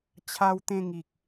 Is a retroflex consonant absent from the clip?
yes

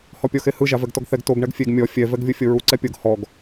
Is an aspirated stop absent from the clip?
yes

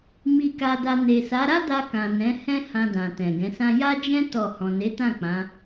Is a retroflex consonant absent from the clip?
yes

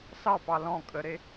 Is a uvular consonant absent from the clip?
yes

